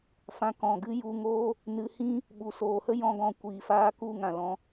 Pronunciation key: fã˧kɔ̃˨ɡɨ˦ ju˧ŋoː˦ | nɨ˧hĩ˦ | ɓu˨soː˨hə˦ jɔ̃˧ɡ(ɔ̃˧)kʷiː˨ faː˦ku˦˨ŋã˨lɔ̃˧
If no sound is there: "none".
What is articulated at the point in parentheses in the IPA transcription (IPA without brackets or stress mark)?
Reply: ɔ̃˧